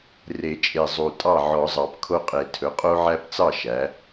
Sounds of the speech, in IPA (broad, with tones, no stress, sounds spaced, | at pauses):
r e˨˩˦ t͡ʃʼ e˨˩ zˤ u˨˩ tʼ ɑ˥˩ ʕ ɔ˨˩˦ zˤ ɑ˨˩ p kʰ o˦ qʼ e˨˩ tʰ ɵ˩˥ qʼ o˦ ʕ æ˦ p t͡s ɑ˥˩ ʃ æ˩˥